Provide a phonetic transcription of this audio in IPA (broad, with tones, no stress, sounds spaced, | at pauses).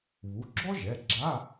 β u˩˧˩ ɡ͡ǁ ɔ˥ ʒ ɛ˩˧˩ ɡ͡ǁ a˧˥˧